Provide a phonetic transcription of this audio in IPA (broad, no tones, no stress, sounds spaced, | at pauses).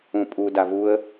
ũ pʼ u d a v u ə̯